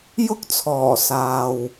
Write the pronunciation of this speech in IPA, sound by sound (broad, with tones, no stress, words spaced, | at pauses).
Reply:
jʊ˥k̚t͡sʰɔː˨˩ saː˨w